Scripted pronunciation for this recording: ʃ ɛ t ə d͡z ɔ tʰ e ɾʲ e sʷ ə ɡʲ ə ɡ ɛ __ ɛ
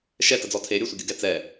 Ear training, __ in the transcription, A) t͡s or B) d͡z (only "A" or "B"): A